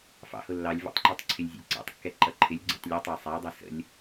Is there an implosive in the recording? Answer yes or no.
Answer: no